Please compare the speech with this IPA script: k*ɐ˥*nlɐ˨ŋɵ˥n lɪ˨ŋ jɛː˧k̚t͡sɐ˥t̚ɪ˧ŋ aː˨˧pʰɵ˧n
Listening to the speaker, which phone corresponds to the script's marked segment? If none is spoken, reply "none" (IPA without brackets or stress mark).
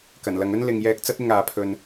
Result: ɐ˨˩